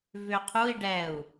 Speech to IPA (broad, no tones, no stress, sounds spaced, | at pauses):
v ʏ qʰ u i̯ ɖ ɛ u̯